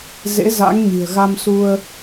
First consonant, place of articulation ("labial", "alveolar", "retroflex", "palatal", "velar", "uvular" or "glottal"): alveolar